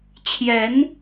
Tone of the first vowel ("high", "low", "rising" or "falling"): rising